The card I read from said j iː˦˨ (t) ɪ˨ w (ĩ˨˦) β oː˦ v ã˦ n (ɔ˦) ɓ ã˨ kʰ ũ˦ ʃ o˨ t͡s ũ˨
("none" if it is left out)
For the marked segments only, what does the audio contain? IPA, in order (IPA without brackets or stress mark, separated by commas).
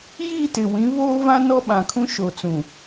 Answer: t, ĩ˨˦, ɔ˦